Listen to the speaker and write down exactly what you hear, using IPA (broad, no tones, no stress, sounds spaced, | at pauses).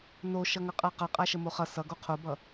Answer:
n o ʃ ʌ ŋ ʌ qʼ a q ʌ qʼ a ʃ ə m o χ ʌ s ʌ ɡ o qʰ o b ʌ